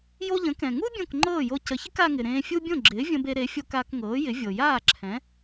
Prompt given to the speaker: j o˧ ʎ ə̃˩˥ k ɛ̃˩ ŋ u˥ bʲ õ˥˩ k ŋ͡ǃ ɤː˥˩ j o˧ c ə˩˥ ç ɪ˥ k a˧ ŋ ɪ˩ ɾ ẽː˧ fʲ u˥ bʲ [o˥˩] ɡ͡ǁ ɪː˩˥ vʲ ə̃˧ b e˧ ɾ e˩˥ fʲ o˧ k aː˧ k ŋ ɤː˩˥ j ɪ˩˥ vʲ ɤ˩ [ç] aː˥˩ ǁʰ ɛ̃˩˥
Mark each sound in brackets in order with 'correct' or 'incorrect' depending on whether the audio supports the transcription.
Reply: incorrect: õ˥˩, incorrect: j

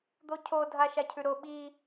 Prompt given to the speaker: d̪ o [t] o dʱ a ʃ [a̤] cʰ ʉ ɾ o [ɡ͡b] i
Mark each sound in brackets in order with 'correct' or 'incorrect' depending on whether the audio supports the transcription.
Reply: incorrect: cʰ, incorrect: a, incorrect: ɓ

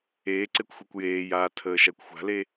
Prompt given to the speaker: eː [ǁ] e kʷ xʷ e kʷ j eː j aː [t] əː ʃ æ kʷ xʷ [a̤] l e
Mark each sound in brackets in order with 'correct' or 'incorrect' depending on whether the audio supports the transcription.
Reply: incorrect: ǀ, incorrect: tʰ, correct

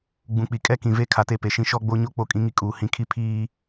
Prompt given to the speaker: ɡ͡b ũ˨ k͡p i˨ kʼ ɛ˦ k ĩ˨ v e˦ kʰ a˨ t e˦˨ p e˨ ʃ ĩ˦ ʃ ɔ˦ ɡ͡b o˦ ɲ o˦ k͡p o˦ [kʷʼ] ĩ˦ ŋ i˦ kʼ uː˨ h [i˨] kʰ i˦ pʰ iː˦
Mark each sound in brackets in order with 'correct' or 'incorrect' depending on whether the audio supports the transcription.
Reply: incorrect: kʼ, incorrect: ĩ˨

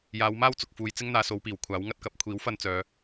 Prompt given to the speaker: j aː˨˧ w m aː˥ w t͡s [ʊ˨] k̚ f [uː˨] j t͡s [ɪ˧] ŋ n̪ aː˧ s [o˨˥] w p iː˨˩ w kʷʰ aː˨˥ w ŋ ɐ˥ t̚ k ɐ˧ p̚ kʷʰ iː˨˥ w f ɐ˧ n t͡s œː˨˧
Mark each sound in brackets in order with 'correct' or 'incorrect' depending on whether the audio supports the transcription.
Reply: correct, correct, incorrect: ɪ˥, incorrect: o˨˧

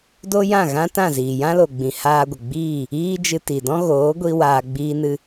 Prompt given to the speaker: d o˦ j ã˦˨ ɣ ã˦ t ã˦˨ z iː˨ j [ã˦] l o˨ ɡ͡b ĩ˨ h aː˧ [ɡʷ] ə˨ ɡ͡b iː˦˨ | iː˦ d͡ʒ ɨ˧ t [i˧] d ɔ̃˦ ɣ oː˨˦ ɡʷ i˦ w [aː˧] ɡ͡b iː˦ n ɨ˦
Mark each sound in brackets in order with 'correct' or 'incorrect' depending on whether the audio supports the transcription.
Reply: correct, correct, incorrect: i˨, correct

